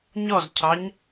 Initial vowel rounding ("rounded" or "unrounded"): rounded